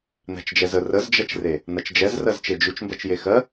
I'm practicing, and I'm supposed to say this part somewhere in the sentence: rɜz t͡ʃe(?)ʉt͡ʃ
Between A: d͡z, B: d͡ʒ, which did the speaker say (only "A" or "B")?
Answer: B